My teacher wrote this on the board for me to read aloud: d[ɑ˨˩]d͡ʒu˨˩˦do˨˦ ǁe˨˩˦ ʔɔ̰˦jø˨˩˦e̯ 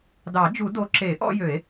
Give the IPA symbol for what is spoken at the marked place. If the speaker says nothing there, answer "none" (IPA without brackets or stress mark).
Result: ɑ˨˩˦